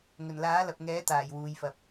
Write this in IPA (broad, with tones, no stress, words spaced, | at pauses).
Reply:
ŋɵ˨˩nlaː˨˥lɐ˨p̚ ŋɛː˨˥t̪aː˨˩j wuː˨jfɐ˨p̚